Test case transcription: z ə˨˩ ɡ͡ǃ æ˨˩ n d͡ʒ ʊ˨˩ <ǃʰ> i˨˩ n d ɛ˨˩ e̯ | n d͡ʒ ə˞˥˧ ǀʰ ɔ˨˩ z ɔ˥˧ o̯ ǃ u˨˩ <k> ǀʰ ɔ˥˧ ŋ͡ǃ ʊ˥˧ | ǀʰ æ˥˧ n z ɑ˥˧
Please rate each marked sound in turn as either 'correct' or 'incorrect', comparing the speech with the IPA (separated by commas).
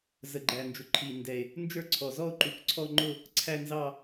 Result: correct, correct